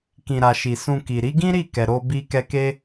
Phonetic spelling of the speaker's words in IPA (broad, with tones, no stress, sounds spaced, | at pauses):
k ĩ˨ ɾ a˨ ʃ i˨ s ũ˧ k i˨ ɾ i˨˦ ɡ ĩ˦ ɾ i˦˨ k ɛ˨ ɾ o˧ b i˧ k ɛ˧ k e˦